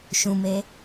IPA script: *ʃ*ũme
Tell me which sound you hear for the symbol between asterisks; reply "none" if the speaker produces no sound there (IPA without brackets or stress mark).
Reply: ʃ